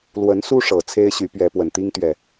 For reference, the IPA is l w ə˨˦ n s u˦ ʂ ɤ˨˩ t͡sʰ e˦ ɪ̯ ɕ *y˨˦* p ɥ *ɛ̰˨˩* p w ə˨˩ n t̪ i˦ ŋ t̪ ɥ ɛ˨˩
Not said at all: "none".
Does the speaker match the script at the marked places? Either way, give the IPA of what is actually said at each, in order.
y˨˦, ɛ˨˦

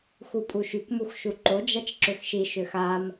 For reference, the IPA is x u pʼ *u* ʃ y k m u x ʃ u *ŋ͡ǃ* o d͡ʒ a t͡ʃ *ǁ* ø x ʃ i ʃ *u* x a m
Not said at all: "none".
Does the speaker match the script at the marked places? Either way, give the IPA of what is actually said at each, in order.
u, ǃ, ǁ, ø

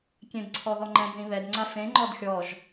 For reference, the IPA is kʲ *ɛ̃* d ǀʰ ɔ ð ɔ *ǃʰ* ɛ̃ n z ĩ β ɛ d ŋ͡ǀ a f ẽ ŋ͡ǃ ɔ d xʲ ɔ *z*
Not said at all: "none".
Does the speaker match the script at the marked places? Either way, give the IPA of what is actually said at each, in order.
ẽ, ŋ͡ǃ, ʒ

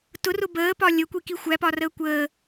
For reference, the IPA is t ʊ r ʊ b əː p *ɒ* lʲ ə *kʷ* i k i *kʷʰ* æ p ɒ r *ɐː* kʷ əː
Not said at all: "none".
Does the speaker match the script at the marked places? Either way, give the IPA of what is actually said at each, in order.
ɒ, kʷ, xʷ, əː

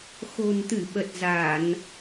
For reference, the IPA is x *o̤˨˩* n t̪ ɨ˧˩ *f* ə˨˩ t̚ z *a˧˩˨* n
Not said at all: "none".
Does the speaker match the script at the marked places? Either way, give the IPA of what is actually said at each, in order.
o̤˨˩, ɓ, a˧˩˨

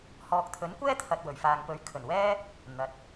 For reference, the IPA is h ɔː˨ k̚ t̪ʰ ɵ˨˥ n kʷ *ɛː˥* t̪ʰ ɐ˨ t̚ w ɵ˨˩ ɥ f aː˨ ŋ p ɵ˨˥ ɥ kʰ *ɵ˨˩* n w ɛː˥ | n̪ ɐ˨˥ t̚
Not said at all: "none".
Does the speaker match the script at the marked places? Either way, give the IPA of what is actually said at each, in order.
ɛː˥, ɵ˨˩

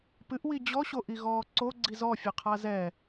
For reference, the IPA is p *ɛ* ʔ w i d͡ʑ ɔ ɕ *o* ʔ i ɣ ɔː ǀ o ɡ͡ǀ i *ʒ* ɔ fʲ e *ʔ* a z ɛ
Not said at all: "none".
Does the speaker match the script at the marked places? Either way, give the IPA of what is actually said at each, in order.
ɨ, o, z, qʰ

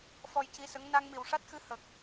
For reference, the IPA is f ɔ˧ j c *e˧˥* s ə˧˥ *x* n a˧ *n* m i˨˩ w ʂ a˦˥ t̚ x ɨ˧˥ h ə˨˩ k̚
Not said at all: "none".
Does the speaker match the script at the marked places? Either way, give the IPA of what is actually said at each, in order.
i˧˥, ŋ, ŋ

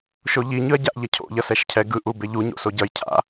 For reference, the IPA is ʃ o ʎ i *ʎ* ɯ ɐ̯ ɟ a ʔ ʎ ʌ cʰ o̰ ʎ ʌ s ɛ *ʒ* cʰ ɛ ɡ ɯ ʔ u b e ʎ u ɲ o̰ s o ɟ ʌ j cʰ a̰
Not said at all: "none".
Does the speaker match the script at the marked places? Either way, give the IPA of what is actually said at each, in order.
ɲ, ʃ

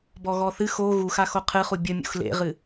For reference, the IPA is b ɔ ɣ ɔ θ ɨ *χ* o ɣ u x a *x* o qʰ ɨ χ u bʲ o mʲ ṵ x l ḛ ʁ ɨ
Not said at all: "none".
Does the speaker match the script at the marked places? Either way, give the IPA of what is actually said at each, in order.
x, x

